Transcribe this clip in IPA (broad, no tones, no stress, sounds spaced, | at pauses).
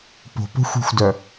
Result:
p o̤ p o̤ xʷ i̤ xʷ d œ